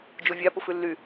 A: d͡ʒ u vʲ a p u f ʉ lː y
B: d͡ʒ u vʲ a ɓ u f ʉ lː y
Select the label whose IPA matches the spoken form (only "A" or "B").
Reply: A